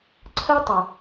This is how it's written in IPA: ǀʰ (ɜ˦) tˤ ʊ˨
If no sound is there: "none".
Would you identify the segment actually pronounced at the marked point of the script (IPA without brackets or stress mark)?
ɜ˦